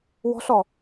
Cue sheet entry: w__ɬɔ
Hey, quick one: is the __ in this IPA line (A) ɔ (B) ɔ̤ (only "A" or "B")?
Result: B